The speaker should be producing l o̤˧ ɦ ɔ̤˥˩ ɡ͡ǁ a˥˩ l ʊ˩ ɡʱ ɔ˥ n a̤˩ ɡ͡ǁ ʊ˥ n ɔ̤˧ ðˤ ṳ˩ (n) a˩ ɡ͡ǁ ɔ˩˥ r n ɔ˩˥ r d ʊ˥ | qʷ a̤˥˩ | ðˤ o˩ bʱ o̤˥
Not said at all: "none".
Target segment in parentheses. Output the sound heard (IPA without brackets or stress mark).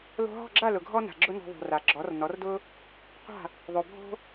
r